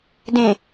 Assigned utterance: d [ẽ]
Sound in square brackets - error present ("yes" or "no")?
no